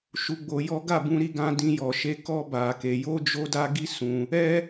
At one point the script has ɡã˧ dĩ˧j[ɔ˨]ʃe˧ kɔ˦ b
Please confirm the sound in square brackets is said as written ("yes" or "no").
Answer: yes